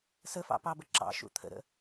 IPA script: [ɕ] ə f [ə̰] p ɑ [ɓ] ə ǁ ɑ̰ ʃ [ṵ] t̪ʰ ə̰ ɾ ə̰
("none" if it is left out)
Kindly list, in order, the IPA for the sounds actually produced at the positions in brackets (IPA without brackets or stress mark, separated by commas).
s, ɑ̰, b, ṵ